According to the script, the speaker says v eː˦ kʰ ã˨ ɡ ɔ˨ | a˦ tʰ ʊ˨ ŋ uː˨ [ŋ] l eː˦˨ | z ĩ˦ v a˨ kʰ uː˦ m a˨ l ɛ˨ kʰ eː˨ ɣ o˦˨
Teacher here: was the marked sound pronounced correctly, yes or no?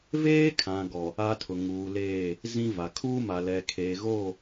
no